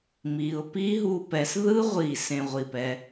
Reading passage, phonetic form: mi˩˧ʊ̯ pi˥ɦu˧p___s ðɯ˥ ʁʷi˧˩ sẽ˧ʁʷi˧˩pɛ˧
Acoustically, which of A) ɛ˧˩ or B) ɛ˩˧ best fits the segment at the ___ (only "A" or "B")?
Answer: B